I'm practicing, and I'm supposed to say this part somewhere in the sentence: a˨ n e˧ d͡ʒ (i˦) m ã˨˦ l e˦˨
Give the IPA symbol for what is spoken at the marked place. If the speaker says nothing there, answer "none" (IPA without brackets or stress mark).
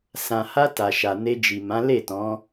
i˨